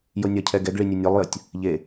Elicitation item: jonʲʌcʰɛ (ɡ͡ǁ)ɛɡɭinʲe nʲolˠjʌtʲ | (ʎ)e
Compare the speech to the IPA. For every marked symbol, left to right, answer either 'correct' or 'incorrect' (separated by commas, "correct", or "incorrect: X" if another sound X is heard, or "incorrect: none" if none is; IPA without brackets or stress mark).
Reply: incorrect: ɡ, correct